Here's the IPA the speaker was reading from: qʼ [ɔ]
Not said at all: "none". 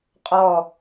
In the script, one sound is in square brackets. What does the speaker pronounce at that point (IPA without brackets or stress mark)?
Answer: ɔ